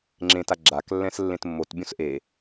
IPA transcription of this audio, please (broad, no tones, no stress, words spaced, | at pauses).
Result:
ŋ͡ǁẽt aɡ͡ǁak lːɛ̃slːẽtmːot bʲõsʔe